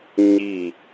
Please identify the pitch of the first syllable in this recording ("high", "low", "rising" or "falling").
falling